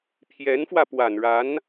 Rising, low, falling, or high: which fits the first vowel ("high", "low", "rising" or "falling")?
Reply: rising